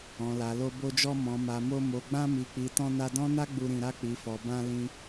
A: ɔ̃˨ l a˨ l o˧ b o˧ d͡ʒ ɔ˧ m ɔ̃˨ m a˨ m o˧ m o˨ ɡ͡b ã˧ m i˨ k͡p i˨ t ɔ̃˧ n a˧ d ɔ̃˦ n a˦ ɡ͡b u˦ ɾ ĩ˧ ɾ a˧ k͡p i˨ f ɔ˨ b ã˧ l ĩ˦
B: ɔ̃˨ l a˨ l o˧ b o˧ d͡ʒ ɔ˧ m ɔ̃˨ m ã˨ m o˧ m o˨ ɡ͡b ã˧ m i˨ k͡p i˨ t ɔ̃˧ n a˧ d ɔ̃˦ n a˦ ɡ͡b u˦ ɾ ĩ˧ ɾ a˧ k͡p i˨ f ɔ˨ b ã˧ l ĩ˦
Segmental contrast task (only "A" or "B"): A